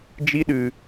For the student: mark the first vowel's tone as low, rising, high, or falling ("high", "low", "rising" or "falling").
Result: high